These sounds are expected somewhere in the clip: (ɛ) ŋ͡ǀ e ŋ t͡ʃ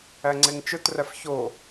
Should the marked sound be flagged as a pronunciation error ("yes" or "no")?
yes